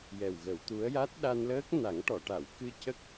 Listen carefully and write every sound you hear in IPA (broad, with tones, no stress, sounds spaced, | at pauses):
j ɛ˨˩ w ɣ ə˨˩˦ w t̪ u˧˥ ə̯ j a˦˥ t̚ ɗ a˧ n l əː˦˥ k̚ n a˨˩˦ ŋ ʈ ɔ˨˩˨ ʈ a˨˩˨ w k ɨ˧ c ə˦˥ k̚